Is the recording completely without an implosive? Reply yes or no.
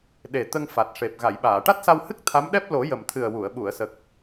no